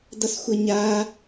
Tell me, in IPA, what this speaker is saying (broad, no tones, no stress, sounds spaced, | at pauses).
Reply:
d ʌ s xʷ ʌ ɲ a